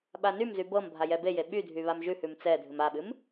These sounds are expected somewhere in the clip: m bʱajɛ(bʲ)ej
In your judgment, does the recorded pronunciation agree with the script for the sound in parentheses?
no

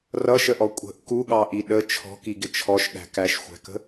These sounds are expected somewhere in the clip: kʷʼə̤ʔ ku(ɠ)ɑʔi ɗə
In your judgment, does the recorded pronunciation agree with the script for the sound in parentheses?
yes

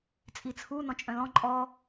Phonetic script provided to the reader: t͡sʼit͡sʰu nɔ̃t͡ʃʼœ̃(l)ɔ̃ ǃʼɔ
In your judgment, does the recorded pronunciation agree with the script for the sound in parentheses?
yes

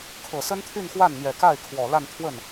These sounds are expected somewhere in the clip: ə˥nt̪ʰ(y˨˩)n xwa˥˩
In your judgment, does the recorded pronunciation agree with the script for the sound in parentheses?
no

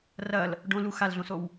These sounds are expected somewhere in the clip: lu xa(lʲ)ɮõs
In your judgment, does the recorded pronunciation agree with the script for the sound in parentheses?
no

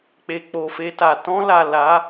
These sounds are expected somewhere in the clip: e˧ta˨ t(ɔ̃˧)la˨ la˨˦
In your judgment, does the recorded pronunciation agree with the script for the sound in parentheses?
yes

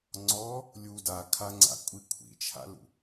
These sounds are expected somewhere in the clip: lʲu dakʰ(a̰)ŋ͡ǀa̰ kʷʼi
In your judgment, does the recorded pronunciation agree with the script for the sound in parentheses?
no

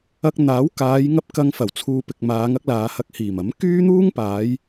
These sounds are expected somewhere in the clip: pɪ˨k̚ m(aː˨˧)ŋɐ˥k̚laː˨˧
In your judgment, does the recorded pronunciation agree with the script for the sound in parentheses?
yes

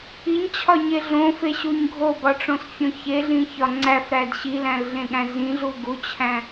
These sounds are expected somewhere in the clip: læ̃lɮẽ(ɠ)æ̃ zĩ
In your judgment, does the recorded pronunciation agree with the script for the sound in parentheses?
yes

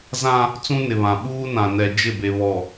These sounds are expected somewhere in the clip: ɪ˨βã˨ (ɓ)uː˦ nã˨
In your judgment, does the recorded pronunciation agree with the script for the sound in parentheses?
yes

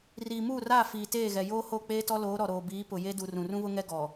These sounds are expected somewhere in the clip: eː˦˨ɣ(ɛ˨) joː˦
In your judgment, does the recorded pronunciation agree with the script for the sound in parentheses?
yes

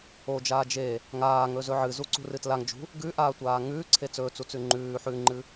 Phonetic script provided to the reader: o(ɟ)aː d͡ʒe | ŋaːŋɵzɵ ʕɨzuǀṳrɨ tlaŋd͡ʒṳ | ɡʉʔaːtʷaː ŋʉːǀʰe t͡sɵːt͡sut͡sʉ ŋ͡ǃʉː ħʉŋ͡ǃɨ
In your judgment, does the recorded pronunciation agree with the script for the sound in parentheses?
no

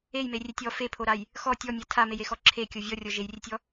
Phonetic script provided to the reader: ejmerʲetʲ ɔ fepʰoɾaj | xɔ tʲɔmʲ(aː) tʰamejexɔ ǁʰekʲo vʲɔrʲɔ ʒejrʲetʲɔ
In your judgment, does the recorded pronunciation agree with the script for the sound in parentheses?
no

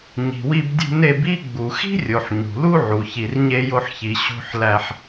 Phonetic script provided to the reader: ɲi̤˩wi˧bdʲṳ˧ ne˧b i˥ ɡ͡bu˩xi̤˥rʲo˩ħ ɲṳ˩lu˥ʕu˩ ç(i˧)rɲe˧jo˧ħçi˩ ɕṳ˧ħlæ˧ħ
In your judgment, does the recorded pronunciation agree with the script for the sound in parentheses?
no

